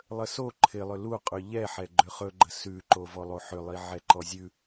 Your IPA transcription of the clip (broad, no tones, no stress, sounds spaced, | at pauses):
lˠ ə s o ǃʰ ɪ lˠ ʏ l u qʼ ʉ ʎ ɛ ħ ɛ ɡ͡ǃ ʏ χ ɵ ɡ͡ǃ ə s ʉ ǃ o v ɔ lˠ o ħ ʏ lˠ i ʕ ɛ ǃ ɔ zʲ ʉ